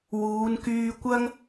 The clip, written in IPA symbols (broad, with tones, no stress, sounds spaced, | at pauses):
w uː˨˧ n k yː˧ kʷ ɐ˥ ŋ